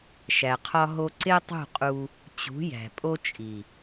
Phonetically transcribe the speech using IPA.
ʃ æ˨ qʰ ɒ˧ ɦ o˧ ǀ e˦ tˤ ṳ˦˨ qʼ u˧ | t͡ɕ ṳ˨˦ j æ̤˨ pʼ o˧ t͡ʃʼ i˨

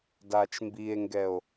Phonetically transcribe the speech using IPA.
d aː t͡ʃ m b i e̯ ŋ ɡ ɛ o̯

